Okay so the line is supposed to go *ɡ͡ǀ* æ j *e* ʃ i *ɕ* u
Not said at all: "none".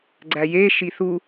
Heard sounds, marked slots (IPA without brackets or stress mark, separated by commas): ɡ͡ǀ, e, θ